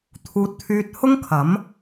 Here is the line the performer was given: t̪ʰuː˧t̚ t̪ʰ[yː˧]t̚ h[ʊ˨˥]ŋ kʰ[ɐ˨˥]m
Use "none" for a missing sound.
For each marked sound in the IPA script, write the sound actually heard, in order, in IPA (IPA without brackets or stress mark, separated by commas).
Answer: yː˧, ʊ˥, ɐ˨˥